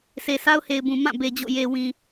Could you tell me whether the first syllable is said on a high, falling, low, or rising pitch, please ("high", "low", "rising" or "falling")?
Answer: low